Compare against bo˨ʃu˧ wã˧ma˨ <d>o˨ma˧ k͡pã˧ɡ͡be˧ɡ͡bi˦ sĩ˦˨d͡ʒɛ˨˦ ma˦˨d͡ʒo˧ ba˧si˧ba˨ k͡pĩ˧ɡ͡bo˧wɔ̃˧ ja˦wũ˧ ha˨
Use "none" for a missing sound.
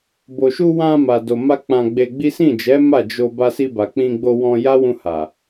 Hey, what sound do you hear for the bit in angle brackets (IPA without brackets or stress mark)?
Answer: d